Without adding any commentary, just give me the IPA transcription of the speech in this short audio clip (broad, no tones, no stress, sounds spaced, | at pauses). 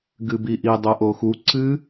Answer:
ɡ ɨ b i ʔ i dˤ o ʔ o x u ǀ ɨ